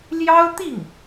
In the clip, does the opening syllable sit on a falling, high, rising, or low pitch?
high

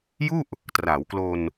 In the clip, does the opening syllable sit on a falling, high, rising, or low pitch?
falling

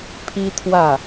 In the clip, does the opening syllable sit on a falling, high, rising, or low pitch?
high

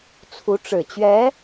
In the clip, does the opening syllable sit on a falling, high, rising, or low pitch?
rising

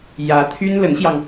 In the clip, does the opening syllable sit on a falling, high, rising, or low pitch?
rising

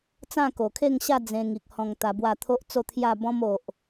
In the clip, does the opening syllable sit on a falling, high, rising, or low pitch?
falling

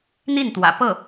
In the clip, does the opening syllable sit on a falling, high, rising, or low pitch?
falling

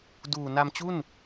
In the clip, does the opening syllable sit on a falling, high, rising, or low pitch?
low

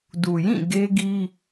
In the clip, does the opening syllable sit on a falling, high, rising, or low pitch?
low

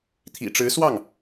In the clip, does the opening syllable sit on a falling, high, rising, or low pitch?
low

